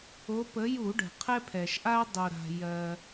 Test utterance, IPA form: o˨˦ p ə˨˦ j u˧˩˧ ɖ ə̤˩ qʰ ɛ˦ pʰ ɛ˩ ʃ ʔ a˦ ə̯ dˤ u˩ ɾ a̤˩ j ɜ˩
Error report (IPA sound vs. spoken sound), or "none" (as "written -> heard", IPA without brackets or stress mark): none